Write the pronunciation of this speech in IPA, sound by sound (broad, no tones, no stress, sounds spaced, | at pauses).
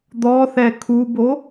d̪ ɔ θ ɛ kʰ u b o